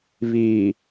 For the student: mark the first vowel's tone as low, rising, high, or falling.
low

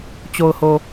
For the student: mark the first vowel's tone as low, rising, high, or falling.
low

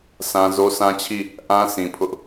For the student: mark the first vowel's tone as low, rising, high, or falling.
low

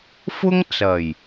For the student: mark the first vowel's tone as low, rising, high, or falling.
high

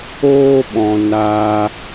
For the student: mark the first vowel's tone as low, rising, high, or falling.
high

